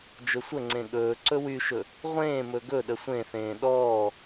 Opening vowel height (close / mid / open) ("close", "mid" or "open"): mid